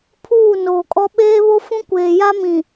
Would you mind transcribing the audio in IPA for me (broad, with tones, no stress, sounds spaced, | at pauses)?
pʰ uː˦˨ n oː˨ kʼ ɔ˦ ɓ eː˦ β o˦ f ũ˦ kʷ eː˨ j a˦ m ĩ˨